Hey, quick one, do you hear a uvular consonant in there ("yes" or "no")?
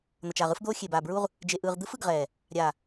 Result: yes